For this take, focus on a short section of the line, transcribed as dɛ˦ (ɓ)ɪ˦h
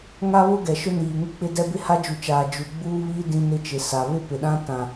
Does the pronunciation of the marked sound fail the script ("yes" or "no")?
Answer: yes